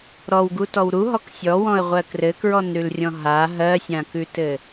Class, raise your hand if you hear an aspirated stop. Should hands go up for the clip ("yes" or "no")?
no